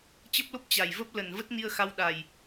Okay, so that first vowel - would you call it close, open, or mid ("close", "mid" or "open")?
mid